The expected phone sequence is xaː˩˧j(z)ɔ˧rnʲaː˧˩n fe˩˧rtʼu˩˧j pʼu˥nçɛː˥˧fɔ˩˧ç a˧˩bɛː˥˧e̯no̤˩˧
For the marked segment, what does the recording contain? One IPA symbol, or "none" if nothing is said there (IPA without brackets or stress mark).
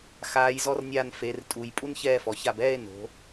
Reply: z